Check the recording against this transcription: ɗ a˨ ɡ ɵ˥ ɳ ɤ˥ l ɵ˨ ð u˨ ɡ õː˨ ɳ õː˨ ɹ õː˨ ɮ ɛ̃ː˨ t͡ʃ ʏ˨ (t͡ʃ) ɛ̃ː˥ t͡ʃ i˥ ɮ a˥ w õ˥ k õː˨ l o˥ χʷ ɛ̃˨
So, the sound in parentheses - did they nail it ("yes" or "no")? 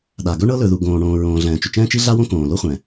yes